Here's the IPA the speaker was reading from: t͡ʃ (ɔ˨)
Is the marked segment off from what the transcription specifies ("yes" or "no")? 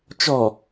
no